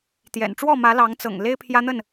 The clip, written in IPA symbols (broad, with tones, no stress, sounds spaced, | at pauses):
t̪ j ɛ̰˨˩ n ʈ͡ʂ w ɔ˥˨ m ä˨˦ l ɑ˨˦ ŋ t͡s ɤ̰˨˩ ŋ l e˦ ɪ̯ pʰ j ä˦ n̪ ə˥˨ n